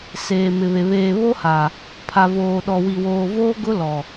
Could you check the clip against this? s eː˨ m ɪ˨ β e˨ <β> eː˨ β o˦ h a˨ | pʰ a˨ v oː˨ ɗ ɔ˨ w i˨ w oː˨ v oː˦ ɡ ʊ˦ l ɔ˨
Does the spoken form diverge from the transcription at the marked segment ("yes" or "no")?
no